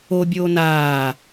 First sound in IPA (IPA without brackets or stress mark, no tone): o